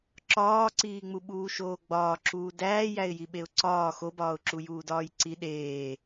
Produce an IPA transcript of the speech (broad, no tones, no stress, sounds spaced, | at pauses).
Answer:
ǁ ɒː ǀ iː ŋ͡m u ɓ uː ʃ oː ɡ͡b ɒː ǁ uː d æː j æ ɪ̯ j i ɓ e ʊ̯ ǀ ɒː x o b ɒː ʊ̯ ǁ u j uː d ɒː j ǀ i ɗ eː